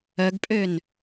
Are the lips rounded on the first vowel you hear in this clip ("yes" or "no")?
yes